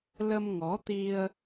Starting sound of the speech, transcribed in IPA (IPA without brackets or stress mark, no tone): l